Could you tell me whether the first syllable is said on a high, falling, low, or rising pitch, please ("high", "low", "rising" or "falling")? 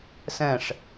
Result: falling